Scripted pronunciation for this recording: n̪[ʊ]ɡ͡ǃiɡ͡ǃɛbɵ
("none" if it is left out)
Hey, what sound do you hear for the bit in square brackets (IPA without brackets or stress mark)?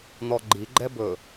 ɔ